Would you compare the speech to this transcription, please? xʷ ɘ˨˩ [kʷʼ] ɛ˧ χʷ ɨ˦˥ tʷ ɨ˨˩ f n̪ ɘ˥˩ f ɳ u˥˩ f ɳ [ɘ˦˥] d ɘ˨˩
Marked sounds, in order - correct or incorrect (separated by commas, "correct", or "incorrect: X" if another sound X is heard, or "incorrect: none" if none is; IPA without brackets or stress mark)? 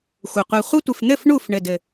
incorrect: qʷ, incorrect: ɘ˨˩